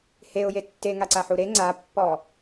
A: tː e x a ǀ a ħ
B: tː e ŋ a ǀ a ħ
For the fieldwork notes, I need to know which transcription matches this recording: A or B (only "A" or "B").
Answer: B